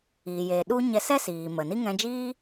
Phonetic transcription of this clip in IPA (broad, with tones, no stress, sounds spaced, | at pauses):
iː˨ j eː˨ ɗ u˦ ɲ ɛ˧ s ɛ˦ s iː˨ m ə˨ n i˦ ŋ ɛ̃˧ d͡ʒ iː˦